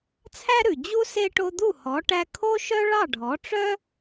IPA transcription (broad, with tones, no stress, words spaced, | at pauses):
t͡sʰæ˥ɾʉ˩d͡ʑu˥ se˥ ʈo˧d̪u˥˩hɔ˩˥ʈæ˧ kʰo˥ʃœ˥ ɭɑ˥˩ɖʱɔ˩˥ ʈ͡ʂœ˥